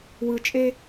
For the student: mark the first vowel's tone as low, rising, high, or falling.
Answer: low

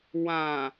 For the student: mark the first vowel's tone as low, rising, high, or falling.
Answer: low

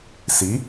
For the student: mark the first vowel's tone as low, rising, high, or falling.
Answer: rising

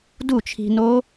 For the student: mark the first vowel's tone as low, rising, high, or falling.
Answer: falling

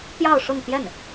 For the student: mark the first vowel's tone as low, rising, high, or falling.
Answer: falling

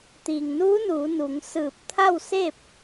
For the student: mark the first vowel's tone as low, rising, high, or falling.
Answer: low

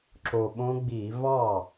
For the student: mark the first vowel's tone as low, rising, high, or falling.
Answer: low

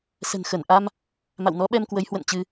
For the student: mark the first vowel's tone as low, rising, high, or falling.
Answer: low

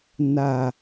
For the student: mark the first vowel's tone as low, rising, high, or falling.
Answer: falling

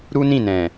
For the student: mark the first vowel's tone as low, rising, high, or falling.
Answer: high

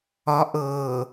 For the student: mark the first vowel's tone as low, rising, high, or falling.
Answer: rising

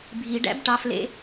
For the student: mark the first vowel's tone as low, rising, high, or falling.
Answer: low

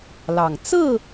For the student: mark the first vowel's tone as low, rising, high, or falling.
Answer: low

